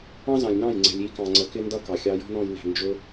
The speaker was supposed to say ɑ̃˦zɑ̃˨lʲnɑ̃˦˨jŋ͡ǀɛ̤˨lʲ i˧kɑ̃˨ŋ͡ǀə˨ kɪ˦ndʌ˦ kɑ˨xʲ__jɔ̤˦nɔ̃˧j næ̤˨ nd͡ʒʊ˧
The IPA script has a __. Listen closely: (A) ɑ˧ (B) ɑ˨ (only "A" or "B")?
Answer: A